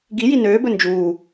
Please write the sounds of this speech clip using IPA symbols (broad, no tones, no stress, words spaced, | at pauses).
ɡiji nøːbɵ nd͡ʒuː